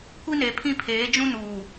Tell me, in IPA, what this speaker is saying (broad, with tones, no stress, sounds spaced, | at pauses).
kʷ i˦ n e˨ pʰ ĩ˦ pʰ eː˨˦ d͡ʒ ũ˦ n uː˨